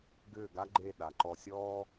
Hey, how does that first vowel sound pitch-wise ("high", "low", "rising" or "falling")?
falling